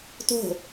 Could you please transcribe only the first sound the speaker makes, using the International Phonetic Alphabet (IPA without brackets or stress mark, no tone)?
t